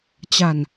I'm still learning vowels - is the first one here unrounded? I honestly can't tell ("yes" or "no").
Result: yes